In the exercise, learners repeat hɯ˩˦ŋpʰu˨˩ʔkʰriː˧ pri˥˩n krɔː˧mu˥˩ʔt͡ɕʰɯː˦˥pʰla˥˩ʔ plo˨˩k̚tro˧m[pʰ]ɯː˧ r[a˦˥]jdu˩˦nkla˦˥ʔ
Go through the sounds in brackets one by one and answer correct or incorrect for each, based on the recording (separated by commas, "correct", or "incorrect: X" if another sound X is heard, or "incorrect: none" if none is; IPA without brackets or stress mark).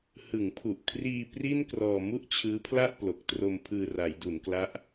correct, incorrect: a˩˦